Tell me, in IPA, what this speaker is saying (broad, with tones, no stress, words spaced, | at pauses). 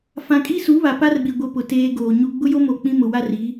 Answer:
fã˨kʼi˦ su˨˦βa˨pa˦rɓi˨ ɡʷɪ˦pʊ˨teː˦ ɡoː˨ɲu˦ ɡ͡bʊ˦jo˦mo˨ k͡pĩ˦mʊ˨wa˦ri˨˦